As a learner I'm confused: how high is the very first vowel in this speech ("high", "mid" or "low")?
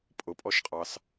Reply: high